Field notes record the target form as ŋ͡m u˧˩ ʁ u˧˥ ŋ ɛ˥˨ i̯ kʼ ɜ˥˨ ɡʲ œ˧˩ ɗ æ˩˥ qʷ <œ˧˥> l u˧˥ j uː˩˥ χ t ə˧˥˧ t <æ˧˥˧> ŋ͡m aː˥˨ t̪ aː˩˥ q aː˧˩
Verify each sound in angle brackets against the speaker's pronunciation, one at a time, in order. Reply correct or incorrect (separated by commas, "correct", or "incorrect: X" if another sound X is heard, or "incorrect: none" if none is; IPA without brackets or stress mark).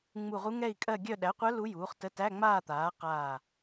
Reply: correct, correct